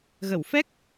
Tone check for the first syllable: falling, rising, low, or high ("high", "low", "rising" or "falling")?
low